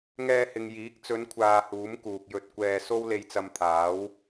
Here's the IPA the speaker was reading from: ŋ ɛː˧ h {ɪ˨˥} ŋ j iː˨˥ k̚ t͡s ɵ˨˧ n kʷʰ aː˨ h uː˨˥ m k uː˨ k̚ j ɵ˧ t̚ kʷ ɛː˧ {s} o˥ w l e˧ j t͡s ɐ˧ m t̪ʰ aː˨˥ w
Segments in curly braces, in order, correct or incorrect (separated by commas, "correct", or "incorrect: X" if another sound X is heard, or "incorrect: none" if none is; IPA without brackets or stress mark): incorrect: ɪ˨, correct